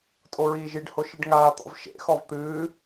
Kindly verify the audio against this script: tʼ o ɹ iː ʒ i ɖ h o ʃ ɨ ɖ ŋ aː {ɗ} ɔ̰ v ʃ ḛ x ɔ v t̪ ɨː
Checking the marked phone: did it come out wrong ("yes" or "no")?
yes